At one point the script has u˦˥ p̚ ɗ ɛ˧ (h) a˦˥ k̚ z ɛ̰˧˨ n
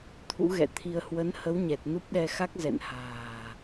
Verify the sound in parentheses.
incorrect: x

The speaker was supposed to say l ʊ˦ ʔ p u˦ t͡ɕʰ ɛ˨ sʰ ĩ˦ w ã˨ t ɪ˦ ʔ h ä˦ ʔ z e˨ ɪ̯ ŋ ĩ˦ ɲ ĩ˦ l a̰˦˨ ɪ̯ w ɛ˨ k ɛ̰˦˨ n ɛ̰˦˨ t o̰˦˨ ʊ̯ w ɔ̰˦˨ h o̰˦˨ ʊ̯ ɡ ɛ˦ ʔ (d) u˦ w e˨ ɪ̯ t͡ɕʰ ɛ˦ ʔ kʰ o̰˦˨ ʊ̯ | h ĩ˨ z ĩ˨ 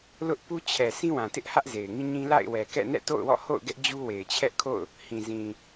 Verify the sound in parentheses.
incorrect: d͡ʑ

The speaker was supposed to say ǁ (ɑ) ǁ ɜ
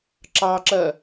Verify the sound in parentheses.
correct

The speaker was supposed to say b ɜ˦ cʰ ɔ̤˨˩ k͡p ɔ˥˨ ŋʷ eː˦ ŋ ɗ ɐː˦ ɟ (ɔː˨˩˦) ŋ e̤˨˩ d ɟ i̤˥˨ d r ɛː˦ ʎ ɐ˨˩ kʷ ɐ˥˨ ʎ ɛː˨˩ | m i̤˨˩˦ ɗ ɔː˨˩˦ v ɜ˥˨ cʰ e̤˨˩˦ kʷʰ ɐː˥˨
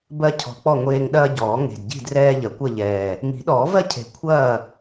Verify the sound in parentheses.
correct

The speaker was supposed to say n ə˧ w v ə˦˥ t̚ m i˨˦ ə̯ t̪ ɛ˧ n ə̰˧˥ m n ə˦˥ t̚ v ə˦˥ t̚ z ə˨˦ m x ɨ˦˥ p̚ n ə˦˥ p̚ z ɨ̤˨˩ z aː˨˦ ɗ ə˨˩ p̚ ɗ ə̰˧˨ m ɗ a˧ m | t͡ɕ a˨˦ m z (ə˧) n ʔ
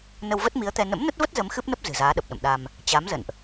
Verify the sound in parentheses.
incorrect: ə̰˧˨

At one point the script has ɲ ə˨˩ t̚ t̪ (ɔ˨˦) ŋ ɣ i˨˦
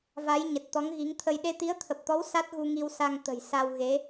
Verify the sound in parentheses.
correct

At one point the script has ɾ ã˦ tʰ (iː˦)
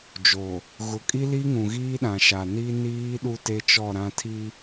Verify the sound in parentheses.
incorrect: i˦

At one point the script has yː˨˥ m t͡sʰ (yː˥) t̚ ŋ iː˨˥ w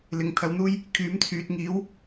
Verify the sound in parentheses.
incorrect: yː˨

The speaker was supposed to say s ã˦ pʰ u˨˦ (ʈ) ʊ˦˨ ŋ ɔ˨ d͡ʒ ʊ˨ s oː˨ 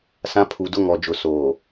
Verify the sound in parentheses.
incorrect: d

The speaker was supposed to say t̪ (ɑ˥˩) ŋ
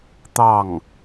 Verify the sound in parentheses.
correct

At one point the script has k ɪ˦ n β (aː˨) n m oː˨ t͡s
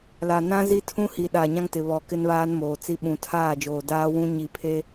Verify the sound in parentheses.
incorrect: aː˦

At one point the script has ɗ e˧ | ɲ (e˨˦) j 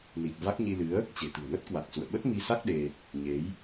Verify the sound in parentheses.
correct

